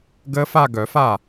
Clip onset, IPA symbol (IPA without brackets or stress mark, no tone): ɡ